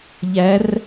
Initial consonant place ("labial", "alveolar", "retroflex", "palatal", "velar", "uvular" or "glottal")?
palatal